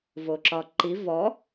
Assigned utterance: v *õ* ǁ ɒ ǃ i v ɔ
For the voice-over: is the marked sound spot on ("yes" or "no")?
no